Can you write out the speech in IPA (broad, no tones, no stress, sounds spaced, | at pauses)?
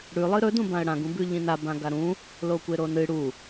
ɽ ʉ lˠ ɨ ɾ ɵ d ũ b ã ə̯ ɽ ã ɡ ũ b ʉ ʎ ĩ n a b ã ɡ a ɾ ũ | l o kʷ e ɾ o n ɨ ɽ u